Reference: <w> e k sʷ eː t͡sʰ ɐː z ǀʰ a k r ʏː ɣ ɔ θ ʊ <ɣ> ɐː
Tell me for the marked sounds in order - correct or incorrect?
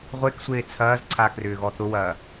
incorrect: ʁʷ, incorrect: w

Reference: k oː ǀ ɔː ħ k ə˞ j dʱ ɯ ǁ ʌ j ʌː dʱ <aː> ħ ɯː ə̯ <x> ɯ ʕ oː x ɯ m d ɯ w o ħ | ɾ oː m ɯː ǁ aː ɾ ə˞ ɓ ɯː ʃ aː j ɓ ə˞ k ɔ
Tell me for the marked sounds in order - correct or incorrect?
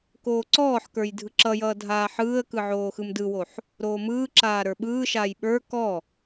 correct, incorrect: k

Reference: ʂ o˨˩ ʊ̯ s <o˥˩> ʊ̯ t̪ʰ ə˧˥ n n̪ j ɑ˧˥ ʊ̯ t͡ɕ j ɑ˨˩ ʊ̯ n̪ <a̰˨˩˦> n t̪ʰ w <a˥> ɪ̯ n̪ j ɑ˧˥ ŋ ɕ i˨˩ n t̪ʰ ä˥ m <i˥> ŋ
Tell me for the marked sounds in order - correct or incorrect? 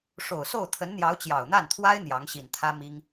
correct, incorrect: a˥˩, correct, correct

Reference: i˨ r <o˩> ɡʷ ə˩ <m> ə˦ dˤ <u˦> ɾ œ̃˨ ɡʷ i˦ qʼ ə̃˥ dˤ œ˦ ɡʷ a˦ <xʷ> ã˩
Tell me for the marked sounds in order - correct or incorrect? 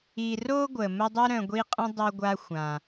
incorrect: o˥, correct, correct, correct

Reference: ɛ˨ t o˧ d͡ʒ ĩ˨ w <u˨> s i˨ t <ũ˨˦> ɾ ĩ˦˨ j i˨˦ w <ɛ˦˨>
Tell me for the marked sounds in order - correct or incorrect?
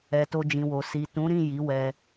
incorrect: o˨, correct, incorrect: ɛ˧

